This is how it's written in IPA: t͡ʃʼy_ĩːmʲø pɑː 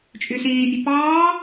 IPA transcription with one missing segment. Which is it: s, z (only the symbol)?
s